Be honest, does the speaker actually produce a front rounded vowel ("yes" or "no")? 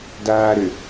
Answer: yes